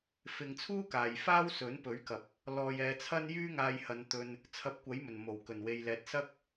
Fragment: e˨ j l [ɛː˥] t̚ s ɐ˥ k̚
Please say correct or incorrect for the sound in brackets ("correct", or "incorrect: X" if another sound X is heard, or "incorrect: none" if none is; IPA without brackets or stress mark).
incorrect: ɛː˨